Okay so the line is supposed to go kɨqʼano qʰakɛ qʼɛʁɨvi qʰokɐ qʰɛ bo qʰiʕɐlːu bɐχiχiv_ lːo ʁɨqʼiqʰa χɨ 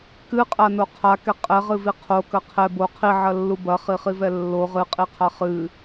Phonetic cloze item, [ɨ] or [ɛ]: ɛ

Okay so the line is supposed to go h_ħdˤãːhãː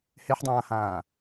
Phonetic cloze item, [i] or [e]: e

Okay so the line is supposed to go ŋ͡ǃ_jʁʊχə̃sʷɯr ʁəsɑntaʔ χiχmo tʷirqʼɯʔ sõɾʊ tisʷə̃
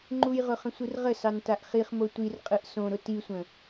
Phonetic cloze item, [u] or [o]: u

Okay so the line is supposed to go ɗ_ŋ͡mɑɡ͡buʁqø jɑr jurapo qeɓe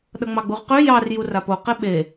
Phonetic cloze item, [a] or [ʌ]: ʌ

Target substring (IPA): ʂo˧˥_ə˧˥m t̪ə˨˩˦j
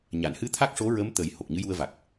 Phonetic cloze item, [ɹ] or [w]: ɹ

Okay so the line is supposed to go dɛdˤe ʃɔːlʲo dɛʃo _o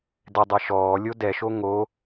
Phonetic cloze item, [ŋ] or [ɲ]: ŋ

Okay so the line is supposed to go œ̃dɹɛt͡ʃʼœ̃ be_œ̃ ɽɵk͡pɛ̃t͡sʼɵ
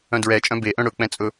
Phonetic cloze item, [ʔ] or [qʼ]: ʔ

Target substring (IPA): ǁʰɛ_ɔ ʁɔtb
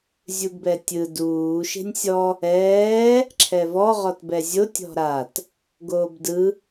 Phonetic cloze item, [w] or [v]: v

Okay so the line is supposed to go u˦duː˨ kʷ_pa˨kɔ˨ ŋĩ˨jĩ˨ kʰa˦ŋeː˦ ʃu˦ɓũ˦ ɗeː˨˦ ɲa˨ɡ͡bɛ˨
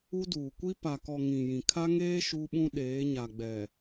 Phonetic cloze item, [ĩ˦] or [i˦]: i˦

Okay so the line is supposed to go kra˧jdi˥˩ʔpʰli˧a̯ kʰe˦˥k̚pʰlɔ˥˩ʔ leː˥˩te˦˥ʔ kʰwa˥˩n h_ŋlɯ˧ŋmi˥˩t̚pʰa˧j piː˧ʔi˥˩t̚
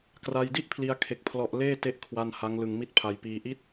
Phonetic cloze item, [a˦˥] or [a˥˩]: a˦˥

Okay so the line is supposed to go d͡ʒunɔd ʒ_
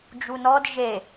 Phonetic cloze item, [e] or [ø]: e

